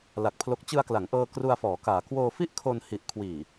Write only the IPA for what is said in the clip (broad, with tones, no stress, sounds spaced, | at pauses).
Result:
l a˨˩ k̚ pʰ l o˦˥ k̚ t͡ɕ ɯ˧ a̯ k l a˩˦ ŋ ʔ ɤː˧ k r u˧ a̯ f ɔː˩˦ k aː˩˦ k w oː˧ f i˥˩ ʔ kʰ o˧ n h i˨˩ ʔ kʰ w iː˨˩